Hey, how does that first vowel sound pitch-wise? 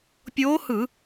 rising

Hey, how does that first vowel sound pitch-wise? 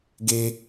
high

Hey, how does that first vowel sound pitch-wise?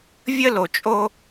high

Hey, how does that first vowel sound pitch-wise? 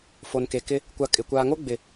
low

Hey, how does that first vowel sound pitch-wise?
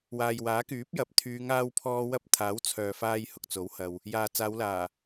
low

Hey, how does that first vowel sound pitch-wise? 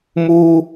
high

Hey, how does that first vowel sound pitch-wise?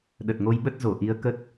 low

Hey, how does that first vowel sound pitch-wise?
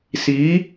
rising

